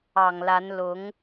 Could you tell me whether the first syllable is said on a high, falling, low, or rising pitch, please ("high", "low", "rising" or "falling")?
low